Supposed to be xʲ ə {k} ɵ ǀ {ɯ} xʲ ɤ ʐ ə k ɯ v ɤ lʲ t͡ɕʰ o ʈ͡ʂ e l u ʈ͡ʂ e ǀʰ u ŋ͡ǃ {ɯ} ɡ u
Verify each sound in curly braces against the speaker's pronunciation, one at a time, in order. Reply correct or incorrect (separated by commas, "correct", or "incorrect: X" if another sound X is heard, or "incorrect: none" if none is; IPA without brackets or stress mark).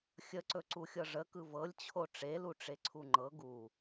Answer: incorrect: ǀ, incorrect: u, incorrect: ɤ